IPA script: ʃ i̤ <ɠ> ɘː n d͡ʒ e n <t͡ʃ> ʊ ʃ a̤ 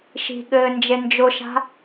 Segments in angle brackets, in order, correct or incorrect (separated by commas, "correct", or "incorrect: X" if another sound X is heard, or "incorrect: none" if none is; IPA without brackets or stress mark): correct, incorrect: d͡ʒ